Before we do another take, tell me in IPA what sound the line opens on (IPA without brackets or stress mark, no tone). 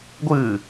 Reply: ɡʷ